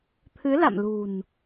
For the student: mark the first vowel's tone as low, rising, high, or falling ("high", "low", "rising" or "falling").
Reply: rising